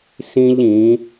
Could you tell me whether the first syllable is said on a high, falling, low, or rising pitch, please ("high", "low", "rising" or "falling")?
high